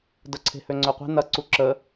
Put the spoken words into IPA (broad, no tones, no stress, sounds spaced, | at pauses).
d ə ǀʰ e̤ h ø ŋ͡ǀ ø qʷ e̤ n ɐ ǀ u ǁ ə